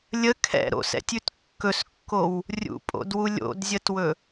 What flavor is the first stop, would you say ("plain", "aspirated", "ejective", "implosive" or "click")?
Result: aspirated